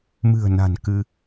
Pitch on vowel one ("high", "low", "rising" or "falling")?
low